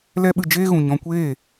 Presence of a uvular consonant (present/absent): absent